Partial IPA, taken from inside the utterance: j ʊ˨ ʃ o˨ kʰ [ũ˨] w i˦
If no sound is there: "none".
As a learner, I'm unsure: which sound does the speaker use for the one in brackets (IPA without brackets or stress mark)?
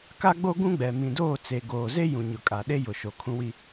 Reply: ũ˦